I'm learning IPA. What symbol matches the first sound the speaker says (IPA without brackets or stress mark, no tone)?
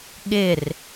ɠ